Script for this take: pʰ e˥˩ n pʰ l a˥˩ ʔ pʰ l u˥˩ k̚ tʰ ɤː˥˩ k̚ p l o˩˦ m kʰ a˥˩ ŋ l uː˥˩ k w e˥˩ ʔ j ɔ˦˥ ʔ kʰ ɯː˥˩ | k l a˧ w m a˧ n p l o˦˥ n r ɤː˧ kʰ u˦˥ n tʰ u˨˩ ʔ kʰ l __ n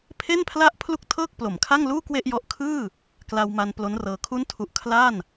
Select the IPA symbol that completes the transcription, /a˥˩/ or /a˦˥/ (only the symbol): a˥˩